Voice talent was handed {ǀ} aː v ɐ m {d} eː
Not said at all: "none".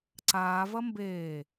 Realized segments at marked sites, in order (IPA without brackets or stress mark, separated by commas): ǀ, b